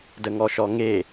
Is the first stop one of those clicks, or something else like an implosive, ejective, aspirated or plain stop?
plain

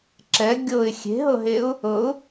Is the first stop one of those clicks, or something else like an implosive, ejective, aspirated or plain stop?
click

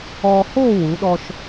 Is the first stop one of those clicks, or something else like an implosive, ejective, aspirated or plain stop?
implosive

